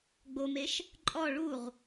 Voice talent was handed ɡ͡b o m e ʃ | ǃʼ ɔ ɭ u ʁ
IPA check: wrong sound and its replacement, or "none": none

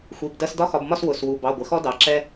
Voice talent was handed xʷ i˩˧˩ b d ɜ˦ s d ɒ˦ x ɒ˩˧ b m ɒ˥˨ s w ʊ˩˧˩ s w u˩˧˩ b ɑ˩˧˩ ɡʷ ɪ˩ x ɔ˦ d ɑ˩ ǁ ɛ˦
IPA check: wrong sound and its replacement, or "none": none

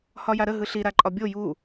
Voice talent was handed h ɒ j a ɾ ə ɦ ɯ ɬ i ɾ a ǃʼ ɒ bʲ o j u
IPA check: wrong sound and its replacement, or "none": none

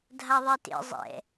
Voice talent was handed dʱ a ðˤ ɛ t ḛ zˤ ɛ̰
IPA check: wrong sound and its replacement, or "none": none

